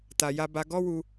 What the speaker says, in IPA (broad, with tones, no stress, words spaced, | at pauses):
ta˧ ja˧ba˧ ɡɔ˦wu˧